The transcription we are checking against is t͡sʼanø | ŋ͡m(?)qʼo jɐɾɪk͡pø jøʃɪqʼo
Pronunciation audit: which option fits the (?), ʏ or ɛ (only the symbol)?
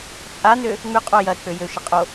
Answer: ʏ